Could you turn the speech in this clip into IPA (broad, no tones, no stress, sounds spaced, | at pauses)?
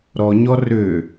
ɾ ɔ ɲ ɔ r ø